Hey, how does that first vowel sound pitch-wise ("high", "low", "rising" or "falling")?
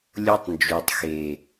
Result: high